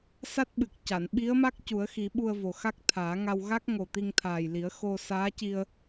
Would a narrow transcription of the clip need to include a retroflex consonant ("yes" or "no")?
no